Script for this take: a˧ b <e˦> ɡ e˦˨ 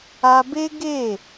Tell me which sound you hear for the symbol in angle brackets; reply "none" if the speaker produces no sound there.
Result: e˦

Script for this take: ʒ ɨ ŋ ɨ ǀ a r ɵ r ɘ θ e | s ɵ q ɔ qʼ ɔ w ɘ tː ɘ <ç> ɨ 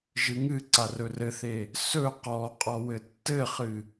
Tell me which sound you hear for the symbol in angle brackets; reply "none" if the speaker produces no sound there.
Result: χ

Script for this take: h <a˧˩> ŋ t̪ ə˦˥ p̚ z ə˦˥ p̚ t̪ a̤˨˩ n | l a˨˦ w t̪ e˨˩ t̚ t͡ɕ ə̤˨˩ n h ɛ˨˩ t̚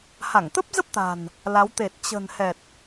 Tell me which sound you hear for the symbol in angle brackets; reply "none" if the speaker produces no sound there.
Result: a˧˩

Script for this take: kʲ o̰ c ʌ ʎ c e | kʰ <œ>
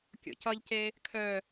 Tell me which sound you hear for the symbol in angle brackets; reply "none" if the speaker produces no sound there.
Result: œ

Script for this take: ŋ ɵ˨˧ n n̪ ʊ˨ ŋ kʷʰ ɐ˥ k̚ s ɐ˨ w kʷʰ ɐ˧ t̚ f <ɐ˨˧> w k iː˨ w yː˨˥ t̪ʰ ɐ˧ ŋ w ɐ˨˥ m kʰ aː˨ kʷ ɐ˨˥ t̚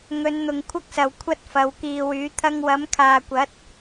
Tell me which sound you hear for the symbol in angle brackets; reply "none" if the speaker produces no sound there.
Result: ɐ˨˧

